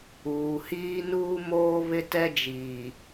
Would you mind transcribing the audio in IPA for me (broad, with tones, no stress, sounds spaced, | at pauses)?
uː˨ h iː˦ n uː˦ m oː˦ β ɪ˦ t ɛ˦ d͡ʒ iː˨